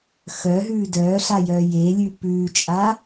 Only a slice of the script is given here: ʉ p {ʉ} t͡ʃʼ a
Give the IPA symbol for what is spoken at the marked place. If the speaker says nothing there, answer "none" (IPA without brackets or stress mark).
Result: ʉː